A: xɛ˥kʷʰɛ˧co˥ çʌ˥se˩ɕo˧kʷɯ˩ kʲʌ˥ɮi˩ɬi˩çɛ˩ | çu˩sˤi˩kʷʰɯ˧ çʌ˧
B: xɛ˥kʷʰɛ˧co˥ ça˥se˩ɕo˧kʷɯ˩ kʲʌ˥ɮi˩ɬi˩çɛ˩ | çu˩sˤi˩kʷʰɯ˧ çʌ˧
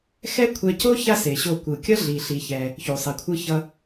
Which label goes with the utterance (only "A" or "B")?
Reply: B